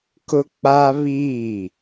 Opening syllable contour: high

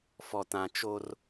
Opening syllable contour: low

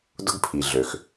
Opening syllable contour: high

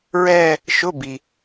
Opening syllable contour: falling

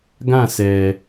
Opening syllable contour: falling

